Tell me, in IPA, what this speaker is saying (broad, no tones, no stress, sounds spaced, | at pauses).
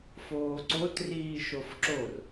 f oː ǀ o t r iː ʃ o f ǁ o r